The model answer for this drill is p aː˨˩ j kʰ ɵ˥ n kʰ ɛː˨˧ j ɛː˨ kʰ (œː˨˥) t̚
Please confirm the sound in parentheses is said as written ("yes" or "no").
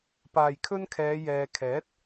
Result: no